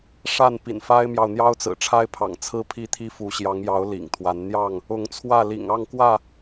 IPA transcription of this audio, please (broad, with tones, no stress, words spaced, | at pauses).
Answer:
ʂa˥˨n pḭ˨˩nfa˦ɪ̯mjɑ˨ʊ̯ n̪jɑ˦ʊ̯t͡sɹ̩˨˩ʈ͡ʂʰa˦ɪ̯pʰɑ̰˨˩ŋ t͡sʰɹ̩˦pʰi˥˨t̪ʰi˦ fu˨˦ɕjɑ˨˦ŋjɑ˨˦ʊ̯ lḭ˨˩ŋt̪ʰwa˨˦n n̪jɑ˥˨ŋ | ʊ˨˦ŋt͡sʰwä˥˨lḭ˨˩ŋ ɑ˥˨ŋkwä˥˨